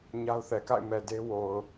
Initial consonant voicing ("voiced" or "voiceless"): voiced